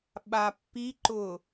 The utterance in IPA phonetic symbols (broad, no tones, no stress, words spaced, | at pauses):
ɓapːiǃʊ